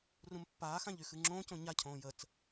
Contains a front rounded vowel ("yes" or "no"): yes